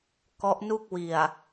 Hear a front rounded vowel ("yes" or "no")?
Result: no